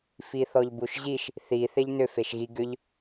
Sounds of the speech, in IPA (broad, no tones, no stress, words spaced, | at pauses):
fiθɔʎbuʃʑiʃ | θi θeʎnʏ feʃɣi ɡʏʎ